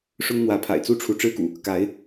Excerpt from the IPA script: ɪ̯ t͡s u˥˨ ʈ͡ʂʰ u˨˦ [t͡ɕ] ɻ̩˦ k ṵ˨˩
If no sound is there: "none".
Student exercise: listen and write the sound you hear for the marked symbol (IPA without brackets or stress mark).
ʈ͡ʂ